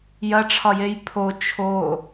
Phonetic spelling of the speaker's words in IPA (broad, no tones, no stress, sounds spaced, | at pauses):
j ɐ ʈ͡ʂʰ ɒ j e j pʰ o t͡ʃʰ o